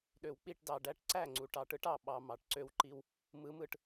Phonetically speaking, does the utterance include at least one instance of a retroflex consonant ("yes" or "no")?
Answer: yes